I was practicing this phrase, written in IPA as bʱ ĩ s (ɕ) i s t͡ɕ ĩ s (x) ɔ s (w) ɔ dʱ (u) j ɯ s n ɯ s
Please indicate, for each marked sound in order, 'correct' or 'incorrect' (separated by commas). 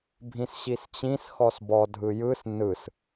correct, correct, incorrect, incorrect